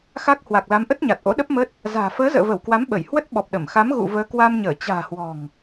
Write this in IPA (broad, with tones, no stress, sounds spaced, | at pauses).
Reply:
x a˦˥ k̚ h w a˨˩ k̚ l a˨˦ m ʔ ə˦˥ t̚ ɲ a˨˩ t̚ ʔ o̰˧˥ ɗ ə˦˥ p̚ m ə˦˥ t̚ | z a̤ː˨˩ f əː˨˦ z ə̰ː˧˨ v ə˧˩ w k w a˨˦ m ɓ ə˧˩ j h w ə˦˥ t̚ ɓ ɔ˨˩ p̚ ɗ ə˧˩ m x a˨˦ m ɣ ṵ˧˨ v əː˨˦ k w a˧ m ɲ əː˧˩ t͡ɕ a̤ː˨˩ h w ɔ̤˨˩ ŋ